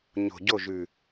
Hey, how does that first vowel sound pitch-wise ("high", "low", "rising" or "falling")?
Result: low